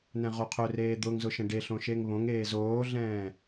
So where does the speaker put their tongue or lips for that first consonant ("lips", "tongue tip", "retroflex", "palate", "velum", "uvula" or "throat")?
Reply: tongue tip